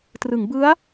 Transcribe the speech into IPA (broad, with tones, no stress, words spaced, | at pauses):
trɯ˩˦ŋbɯ˦˥a̯